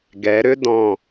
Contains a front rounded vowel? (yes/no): yes